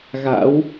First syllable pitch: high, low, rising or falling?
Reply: rising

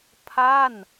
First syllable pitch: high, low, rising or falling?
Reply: falling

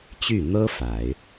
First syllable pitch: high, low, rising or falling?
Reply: falling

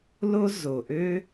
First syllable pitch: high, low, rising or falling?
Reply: high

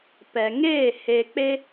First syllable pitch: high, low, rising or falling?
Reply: low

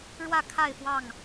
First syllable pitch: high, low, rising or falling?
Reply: falling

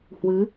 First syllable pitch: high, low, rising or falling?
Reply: rising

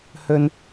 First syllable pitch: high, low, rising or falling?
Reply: high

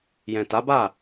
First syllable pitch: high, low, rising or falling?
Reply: low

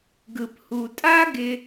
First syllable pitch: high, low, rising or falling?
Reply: low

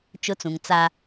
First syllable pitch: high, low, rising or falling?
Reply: high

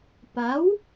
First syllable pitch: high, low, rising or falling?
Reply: rising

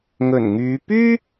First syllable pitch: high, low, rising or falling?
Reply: low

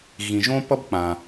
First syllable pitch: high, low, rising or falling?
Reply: low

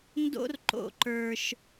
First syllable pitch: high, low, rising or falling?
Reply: high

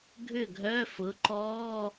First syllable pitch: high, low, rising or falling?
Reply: falling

